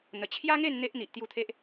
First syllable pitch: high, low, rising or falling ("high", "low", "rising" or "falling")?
low